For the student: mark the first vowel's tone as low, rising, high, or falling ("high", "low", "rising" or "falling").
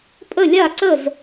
falling